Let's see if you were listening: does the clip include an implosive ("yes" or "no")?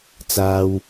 no